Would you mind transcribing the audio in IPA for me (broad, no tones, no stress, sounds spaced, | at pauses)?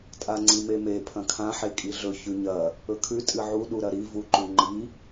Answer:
tʼ a ŋ͡ǀ i m e m e pʰ ɐ̃ kʰ ã ħ e kʼ i ɮ ɵ ç ʉ ɲ ɐ | ɵ kʰ ʉ tʼ ɨ ʕ u ɗ u ɾ ɐ ɾ i v u ǃ u ŋ͡ǃ i